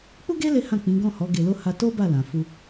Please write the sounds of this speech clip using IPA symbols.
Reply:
k͡p u˦ ɡ e˦ l e˦ h ã˦˨ k͡p ĩ˨˦ ɡ ɔ̃˦˨ h ɔ˨˦ ɡ e˧ l o˦ h a˧ t o˦ b a˦˨ l ã˨ f u˧

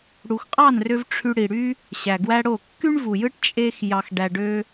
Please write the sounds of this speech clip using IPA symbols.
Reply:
ɽ u˩ x qʼ ɑ˥˩ n r ø˧ v ʈ͡ʂʰ y˧ ɽ i˩ ɽ y˥ | ɕ æ˩ ɡ w æ˥ ɽ o˥˩ kː y˥ ɳ v u˩ j ɯ˥ ʈ t͡ʃʼ e˥ x j ɑ˧ x ɖ æ˧ ɖ ø˥

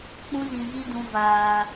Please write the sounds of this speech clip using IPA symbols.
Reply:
k͡p ũ˦ z ĩ˧ ɣ i˦ d ũ˧ v aː˧

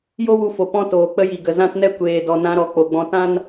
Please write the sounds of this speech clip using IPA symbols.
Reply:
j o˦ w u˧ f o˨ p ɔ̃˦ t oː˨ k͡p ə˦ j i˨ ɡ ə˨ z ã˦ t n ɛ˦ kʷ eː˨ d ɔ˨ n ã˧ ɾ ɔ˨ k͡p o˧ ɡ͡b ɔ̃˦ t ã˦ n

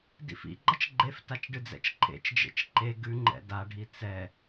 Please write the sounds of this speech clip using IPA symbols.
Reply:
d ḭ f ḭ ɡ͡ǃ ʌ t͡ʃ ɡ͡ǃ e f t a t͡ʃ ɖ ɨ d͡z ɛ̰ t͡ʃ ǃʰ ḛ t͡ʃ d͡ʒ ḛ t͡ʃ ǃ e ɡ ʉ ŋ͡ǃ ɛ̰ d a ɖʱ i t͡s ɛ

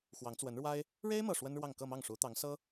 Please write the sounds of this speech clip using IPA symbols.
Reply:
x w ɑ˧˥ ŋ t͡s w ə˧˥ n ɻ w a˥ ɪ̯ | ɻ e˥ ɪ̯ m ɤ˥˩ ʂ w ə˥ n ɻ w ɑ˥˧ ŋ k ɤ˥˧ m ɑ˥˩ ŋ ʂ u˧˥ t̪ ɑ˧˥ ŋ s ɤ˥

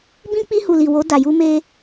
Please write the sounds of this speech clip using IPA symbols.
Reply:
b ĩ˧ k͡p i˧ h u˨ l i˨ w o˨˦ d a˧ j u˦ m e˦

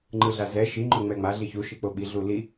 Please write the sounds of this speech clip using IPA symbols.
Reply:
ŋ͡ǃ ɯ ɮ a z ɛ ʃ i ŋ͡ǃ o ŋ͡m ɛ ŋ͡m a ɮ i ç u ʃ i k͡p o ɓ i ɮ u l i

